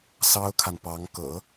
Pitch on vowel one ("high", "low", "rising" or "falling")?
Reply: high